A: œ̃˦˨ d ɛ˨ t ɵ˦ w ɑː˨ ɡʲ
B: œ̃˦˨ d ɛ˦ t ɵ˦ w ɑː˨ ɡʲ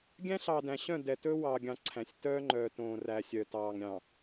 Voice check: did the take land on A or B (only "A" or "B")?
A